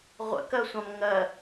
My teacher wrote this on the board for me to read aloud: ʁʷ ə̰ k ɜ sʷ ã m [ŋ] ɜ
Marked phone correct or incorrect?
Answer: correct